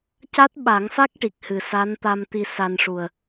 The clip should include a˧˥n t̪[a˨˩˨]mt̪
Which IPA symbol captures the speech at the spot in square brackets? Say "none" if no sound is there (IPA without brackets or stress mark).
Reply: a˧